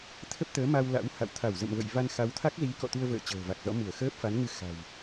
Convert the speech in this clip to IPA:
t̪ʰə˦˥p̚t̪əː˨˦ma˧w la̰˧˥wha̰˧˨w t̪ʰa˧˩w zə̰˧˨mvə̰˧˨j va˧nxa˨˦wt̪ʰa˦˥k̚zi˨˦ kɔ̰˧˨t̪u˧ə̯və̰ː˧˨ t͡ɕə̤ː˨˩va˨˩k̚ zɔ̰˧˥mu˧˩ə̯ xəː˦˥p̚fa˨˦nŋɨ˧xa̤˨˩w

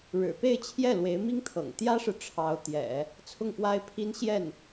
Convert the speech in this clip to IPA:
ɻɻ̩˨˩pe˥˧ɪ̯ t͡ɕʰjɛ˥˩lwe˧˥ɪ̯mi˥ŋt̪ʰɤ̰˨˩ŋ t̪jä˥ʂɻ̩˨ ʈ͡ʂʰɑ˧˥ʊ̯t̪jɛ̰˨˩˦ | t͡sʰʊ˥˩ŋfwa˥ɪ̯pʰi˥n ɕjɛ˥˩n

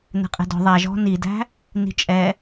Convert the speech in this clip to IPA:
nɛ̤qʼɛ̤dɔ̤ ðˤæʒɔ̤ nidæ̤ | ni̤t͡ʃʼɛ

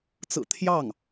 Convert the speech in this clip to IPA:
t͡sɹ̩˨˩ t̪ʰjɑ˥˩ŋ

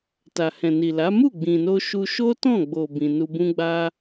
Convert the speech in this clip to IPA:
ta˨hɛ̃˨ni˨la˨˦ mu˦˨ɡ͡bĩ˨no˧ ʃu˧ ʃo˦tɔ̃˦˨ɡ͡bo˨ bĩ˧ nu˧bũ˦ɡ͡ba˦

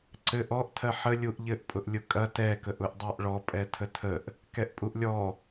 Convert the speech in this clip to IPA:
ǀɘʔ ɔʔ tʰɜħə lʲuʔʎɘʔ pʼʊʔlʲʊkʼɐ tɛ kəʔʊʔdˤɜʔɭɔ pʼɛtʰətʰəʔ | kɛʔpʼuʔlʲɔ

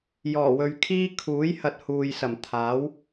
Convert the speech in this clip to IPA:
jɔː˨˩wɵ˨ɥkʰiː˥ kʰuː˨˥j hɐ˧t̚huː˨jsɐ˨˩m t̪ʰaː˨˥w

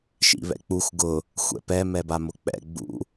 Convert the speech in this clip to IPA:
ʃḭβɛ̰k͡pux ɡʊ | xʷɛ̰pɛ mɛbamʊk͡pɛ̰ ɡ͡bṵ

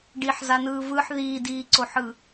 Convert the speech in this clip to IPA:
ɖiħzan̪ɯː vɯħ ðiːdiːǀoħɯ

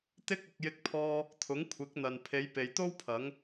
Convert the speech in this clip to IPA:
t̪ɪ˥k̚ ʊ˨˥k̚jɪ˥k̚pʰɔː˥ | t̪ʰʊ˨˥ŋkʷʰɪ˨˥k̚ n̪ɐ˨n pʰe˨˧jpe˨jt̪o˥w pʰɐ˨˧ŋ

